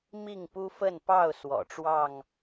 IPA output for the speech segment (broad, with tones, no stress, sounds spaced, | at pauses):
m i˥˨ ŋ p u˦ f ə˥˨ n p ɑ˥˨ ʊ̯ s w ɔ̰˨˩ ʈ͡ʂ w ɑ˥˨ ŋ